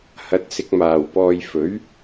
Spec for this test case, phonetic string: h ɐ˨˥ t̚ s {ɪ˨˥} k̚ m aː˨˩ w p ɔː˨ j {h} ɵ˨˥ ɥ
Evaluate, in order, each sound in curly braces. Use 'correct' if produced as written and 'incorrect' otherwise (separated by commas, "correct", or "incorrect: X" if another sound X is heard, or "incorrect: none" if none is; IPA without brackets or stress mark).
correct, incorrect: f